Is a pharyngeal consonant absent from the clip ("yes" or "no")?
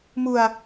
yes